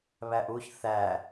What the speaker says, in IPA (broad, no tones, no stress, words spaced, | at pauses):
βæʔuç θæ